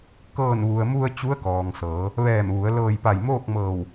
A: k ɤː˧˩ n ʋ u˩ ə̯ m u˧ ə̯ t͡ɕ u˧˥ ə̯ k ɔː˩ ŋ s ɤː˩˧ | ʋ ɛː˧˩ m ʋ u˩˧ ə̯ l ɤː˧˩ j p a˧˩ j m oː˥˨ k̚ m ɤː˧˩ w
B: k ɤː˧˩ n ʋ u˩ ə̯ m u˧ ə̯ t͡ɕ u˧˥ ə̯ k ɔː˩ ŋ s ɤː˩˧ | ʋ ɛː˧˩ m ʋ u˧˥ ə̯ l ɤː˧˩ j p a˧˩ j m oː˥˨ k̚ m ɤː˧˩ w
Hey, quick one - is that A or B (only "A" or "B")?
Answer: A